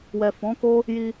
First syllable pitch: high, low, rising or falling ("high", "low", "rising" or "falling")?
low